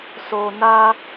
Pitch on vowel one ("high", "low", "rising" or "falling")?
low